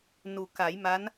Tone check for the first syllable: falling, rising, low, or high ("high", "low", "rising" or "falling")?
low